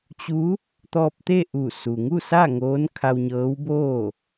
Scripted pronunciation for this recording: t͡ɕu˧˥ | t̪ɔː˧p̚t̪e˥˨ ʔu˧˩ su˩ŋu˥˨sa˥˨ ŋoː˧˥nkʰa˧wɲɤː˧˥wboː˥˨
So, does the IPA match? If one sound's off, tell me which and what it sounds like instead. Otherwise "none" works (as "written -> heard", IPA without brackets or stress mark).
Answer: none